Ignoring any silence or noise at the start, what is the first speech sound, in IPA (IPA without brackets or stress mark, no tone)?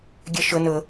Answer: ɡʲ